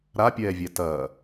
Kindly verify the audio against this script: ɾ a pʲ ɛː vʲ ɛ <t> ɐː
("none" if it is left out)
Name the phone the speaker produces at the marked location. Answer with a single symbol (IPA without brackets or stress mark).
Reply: t